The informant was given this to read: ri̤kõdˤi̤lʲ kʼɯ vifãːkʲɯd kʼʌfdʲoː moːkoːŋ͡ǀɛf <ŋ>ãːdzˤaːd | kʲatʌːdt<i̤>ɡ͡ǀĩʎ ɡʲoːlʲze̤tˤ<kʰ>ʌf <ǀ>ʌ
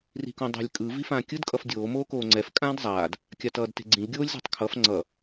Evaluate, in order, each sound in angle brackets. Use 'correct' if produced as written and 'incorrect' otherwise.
incorrect: kʼ, incorrect: e̤, correct, incorrect: ŋ͡ǀ

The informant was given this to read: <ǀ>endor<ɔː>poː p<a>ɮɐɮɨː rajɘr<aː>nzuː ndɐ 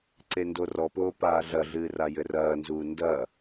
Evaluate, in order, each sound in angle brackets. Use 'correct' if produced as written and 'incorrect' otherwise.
correct, incorrect: ɔ, incorrect: aː, incorrect: ɐː

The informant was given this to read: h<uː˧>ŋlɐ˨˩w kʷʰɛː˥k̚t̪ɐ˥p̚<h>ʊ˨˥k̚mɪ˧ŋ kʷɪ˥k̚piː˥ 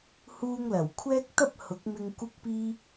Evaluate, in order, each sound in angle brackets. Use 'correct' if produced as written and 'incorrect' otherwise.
correct, correct

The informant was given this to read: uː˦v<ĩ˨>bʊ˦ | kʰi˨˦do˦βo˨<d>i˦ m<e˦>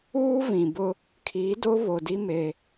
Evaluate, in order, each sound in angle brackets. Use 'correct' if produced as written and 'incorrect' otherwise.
correct, correct, correct

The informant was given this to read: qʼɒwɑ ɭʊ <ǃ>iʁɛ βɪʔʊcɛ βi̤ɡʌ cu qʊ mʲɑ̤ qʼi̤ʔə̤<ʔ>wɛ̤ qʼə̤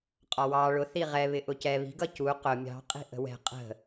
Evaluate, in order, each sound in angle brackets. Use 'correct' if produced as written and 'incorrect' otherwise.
incorrect: θ, incorrect: none

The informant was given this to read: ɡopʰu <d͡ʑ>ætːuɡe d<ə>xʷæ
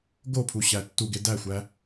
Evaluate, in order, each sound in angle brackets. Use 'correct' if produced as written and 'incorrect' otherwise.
incorrect: ɕ, incorrect: æ

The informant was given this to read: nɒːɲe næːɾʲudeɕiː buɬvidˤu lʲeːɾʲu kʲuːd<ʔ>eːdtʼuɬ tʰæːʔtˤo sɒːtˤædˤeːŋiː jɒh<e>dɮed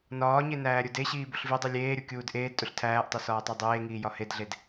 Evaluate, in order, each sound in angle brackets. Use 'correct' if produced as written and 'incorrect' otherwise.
correct, correct

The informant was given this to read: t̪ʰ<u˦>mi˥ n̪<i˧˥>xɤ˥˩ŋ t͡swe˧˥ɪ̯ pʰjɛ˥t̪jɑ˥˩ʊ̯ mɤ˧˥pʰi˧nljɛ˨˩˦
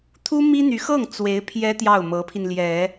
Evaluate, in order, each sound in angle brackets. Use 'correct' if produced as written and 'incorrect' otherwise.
incorrect: u˥, incorrect: y˧˥

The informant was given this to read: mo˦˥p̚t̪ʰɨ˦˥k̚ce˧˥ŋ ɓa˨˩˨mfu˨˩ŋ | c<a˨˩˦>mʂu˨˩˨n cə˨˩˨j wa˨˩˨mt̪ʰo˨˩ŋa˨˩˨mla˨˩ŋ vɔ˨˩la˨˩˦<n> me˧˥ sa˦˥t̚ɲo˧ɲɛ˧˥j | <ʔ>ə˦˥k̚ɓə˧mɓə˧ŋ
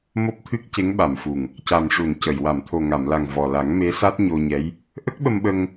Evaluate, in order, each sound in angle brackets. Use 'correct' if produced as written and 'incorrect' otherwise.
incorrect: a˨˩, incorrect: ŋ, correct

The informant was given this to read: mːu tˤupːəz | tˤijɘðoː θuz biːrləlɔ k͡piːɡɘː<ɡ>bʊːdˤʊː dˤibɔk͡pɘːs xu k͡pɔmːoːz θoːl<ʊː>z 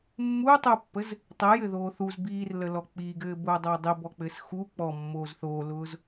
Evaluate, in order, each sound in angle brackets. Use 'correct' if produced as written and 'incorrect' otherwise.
incorrect: none, correct

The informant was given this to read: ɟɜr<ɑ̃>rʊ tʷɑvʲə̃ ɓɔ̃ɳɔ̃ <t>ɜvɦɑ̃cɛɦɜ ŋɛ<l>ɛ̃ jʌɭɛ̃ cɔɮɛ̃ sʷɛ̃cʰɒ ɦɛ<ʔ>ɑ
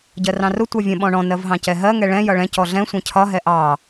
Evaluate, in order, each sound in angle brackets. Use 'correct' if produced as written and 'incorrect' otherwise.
correct, incorrect: n, incorrect: ɭ, correct

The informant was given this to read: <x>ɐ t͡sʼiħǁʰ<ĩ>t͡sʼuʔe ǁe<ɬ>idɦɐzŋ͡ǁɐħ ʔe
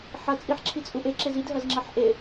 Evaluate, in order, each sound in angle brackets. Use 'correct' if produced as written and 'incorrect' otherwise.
incorrect: ħ, incorrect: i, incorrect: z

